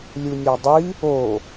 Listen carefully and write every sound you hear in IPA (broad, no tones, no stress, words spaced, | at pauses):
lʲunʲɒdˤi | o